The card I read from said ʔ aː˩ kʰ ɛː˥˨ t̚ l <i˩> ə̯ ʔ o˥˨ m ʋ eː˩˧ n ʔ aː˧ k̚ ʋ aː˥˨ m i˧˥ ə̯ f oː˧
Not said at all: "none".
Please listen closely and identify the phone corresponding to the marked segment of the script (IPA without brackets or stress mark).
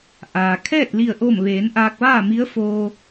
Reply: i˥˨